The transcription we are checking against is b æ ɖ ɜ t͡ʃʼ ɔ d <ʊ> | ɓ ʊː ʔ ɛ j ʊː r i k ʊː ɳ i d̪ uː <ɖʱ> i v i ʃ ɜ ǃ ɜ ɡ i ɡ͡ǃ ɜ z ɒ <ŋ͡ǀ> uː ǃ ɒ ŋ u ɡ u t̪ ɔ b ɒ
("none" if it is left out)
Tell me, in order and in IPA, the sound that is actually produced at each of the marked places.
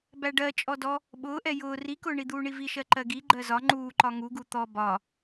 ɔ, ɳ, ŋ͡ǃ

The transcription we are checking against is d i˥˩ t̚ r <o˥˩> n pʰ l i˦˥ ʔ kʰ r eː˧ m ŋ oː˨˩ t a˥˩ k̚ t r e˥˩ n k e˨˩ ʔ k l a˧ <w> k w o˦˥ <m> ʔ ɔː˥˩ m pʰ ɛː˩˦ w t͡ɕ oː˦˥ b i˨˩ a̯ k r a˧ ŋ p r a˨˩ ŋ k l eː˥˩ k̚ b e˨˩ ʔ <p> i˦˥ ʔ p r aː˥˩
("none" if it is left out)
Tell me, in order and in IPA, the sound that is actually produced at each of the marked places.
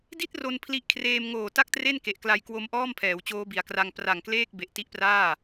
o˧, j, m, t

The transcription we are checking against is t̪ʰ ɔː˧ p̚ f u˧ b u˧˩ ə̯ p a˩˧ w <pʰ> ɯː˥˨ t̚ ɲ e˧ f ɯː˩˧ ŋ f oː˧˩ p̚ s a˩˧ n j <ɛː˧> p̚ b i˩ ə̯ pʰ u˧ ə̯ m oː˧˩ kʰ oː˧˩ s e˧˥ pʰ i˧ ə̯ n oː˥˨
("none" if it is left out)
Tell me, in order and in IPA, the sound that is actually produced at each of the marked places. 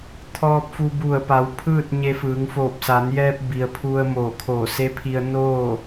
pʰ, ɛː˧

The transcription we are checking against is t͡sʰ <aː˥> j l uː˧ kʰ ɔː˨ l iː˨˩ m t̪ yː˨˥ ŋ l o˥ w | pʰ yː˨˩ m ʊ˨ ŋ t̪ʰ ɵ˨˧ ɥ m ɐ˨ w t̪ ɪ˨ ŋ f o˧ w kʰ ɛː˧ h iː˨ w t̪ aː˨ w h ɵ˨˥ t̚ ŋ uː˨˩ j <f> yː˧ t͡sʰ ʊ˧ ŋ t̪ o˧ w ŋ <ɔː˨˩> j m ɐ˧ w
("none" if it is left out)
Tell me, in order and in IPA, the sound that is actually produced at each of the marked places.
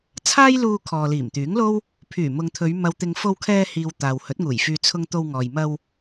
aː˥, f, ɔː˨

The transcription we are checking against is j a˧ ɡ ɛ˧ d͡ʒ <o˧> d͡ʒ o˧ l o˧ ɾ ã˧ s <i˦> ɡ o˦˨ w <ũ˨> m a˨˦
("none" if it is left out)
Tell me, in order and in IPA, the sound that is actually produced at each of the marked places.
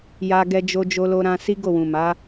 o˧, i˦, ũ˨

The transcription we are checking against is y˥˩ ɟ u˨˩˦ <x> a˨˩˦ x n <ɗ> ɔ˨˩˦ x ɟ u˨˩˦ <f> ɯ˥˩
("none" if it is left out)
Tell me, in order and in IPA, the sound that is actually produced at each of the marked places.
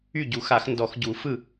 x, d, f

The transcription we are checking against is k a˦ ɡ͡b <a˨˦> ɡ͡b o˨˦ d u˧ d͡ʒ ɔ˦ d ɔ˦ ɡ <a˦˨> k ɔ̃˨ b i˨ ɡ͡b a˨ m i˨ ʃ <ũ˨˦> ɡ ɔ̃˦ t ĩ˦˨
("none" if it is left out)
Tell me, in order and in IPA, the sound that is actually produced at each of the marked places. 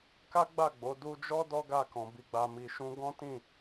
a˦˨, a˦˨, ũ˧

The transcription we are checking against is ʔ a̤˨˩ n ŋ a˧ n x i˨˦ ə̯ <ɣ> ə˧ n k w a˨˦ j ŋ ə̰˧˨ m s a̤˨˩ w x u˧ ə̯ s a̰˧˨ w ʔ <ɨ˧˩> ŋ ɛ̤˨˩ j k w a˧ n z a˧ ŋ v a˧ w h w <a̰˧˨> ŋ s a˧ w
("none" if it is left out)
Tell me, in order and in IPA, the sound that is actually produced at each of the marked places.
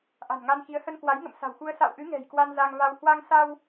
h, ɨ˨˦, a˧

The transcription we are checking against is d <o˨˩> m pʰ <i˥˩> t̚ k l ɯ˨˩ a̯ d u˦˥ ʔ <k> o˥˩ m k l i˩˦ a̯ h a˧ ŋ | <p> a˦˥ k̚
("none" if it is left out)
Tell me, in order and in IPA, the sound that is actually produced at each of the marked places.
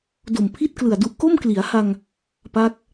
o˨˩, i˥˩, k, p

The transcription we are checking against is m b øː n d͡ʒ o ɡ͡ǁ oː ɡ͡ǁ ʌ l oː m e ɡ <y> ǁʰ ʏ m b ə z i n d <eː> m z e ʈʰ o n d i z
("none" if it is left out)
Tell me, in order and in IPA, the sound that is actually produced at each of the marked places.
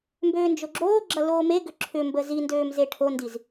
ʏ, øː

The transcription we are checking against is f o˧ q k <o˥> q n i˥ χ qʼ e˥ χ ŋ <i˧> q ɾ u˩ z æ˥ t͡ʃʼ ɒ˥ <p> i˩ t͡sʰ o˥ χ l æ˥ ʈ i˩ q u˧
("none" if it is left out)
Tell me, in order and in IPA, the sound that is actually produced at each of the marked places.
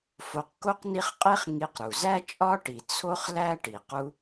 o˥, i˧, ʈ

